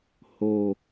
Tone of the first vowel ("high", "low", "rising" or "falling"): low